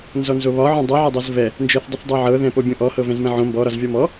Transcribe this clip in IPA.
n z ɔ n z o β ɒ ʕ õ dˤ ɤ ʕ ɒ dˤ o z v ɛ | n d͡ʒ ɤ θ dˤ ɪ θ dˤ o ʕ ɤ ð ɛ̃ p o bʲ ɔ̃ ʔ ɔ h ɤ v ɛ̃ z m ɛ̃ ʕ õ m b ɔ ɾ ɒ z vʲ ɔ m ɔ

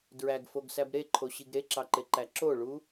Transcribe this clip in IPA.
d ɹ æ ɡ f o ɡ s æ b ɾ e ǃʰ o ɕ i ɡ ɾ e ǁ ɑ ǃ e ǃ æ ǁ o ɭ u

